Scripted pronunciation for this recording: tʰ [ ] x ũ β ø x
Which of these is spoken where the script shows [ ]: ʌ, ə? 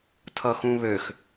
ʌ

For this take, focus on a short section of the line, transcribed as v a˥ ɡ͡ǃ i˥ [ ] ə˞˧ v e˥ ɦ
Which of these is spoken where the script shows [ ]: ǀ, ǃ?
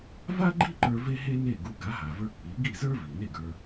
ǃ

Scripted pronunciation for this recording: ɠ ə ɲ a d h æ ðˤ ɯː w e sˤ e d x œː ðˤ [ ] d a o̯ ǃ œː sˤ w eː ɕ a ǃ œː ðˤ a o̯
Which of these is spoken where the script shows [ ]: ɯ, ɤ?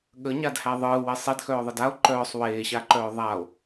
ɯ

